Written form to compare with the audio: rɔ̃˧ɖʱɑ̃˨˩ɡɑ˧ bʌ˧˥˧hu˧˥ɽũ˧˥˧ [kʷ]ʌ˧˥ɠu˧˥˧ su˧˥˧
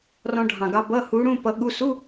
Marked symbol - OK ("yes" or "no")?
no